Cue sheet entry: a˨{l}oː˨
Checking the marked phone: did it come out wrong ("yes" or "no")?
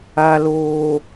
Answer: no